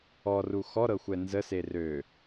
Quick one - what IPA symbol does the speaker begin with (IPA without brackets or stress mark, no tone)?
ɔ